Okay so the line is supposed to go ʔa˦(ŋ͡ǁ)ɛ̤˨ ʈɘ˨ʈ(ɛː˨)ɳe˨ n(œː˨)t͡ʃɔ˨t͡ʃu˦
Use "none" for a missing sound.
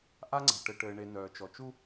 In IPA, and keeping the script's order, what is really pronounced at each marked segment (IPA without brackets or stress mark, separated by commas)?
ŋ͡ǀ, ɘː˨, œː˨